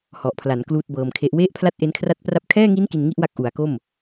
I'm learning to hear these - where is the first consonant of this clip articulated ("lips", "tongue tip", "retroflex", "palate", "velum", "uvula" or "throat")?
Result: throat